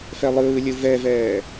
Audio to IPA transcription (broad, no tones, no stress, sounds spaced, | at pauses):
f ɛ lˠ ɯː lʲ ɯ v ɛ v ɛː